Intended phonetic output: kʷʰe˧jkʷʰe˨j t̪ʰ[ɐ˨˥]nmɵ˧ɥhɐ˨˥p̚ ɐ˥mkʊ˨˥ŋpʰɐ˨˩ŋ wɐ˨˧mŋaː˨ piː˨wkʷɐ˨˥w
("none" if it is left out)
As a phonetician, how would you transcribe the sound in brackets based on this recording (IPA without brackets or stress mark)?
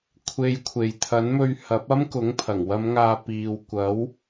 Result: ɐ˨˥